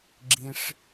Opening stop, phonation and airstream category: click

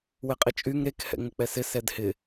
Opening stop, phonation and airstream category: ejective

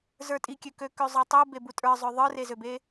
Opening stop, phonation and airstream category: ejective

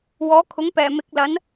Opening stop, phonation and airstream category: aspirated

